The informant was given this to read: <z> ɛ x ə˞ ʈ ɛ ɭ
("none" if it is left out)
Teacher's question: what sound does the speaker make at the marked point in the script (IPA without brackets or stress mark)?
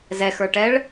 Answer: z